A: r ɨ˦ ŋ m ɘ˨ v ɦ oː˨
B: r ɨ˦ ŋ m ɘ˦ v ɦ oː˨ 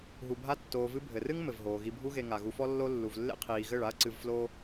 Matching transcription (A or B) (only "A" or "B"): A